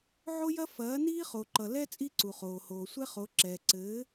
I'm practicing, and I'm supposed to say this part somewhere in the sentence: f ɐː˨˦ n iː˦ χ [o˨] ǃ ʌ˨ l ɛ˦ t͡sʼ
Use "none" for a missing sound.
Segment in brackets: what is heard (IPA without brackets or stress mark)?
o˨